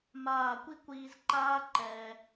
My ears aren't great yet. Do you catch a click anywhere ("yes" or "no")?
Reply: yes